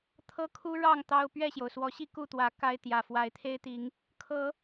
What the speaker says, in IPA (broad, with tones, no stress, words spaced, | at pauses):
t̪ʰɤ˦ kʰu˦ɻɑ˥˨ŋ t̪ɑ˦ʊ̯ pɥɛ˥˨ɕjo˩ʊ̯swɔ˨˦ɕi˥˨ ku˥˨t̪wä˨˦ ka˦ɪ̯t̪jä˨˩ fwa˨˦ɪ̯t̪ʰe˦ɪ̯t̪i˨˦ŋ | kʰɤ˨˦